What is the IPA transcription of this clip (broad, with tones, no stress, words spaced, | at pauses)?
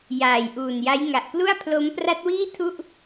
jaː˨˩jʔuː˨˩nja˦˥j ŋa˨˩ʔklu˥˩a̯pʰlo˦˥m pra˦˥t̚wiː˥˩tʰu˥˩ʔ